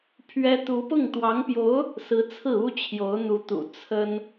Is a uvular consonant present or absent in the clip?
absent